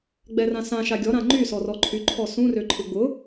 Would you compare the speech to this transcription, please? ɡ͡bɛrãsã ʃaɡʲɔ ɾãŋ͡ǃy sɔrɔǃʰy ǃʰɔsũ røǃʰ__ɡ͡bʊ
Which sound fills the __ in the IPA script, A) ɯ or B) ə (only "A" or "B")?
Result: A